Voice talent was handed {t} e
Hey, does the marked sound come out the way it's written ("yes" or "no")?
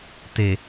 yes